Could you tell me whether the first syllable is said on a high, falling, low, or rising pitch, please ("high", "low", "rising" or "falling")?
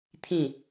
falling